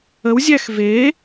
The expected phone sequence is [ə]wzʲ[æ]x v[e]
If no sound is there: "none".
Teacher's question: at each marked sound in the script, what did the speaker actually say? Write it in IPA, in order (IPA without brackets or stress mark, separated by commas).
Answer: ə, æ, e